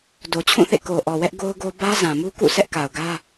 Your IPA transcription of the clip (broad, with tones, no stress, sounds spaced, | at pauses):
d o˨ t͡ɕʰ ũ˦˨ θ ḛ˦˨ k o˨ ʔ ɔ˨ w ɛ˦ ʔ ɡ o˦ ʊ̯ ɡ o˦ b ä˦ z ã˨ m u˦ k ṵ˦˨ sʰ ɛ˦ ʔ k a˨ ʊ̯ ɡ ä˦